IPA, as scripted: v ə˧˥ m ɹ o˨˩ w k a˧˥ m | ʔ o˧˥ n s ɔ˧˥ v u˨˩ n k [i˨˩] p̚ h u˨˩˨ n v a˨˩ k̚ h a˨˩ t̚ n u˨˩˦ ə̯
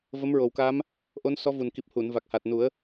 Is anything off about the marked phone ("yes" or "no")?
no